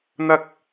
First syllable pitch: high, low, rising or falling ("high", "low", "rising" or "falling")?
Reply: high